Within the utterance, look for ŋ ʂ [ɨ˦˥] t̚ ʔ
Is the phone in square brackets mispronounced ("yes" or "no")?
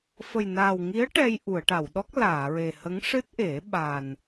no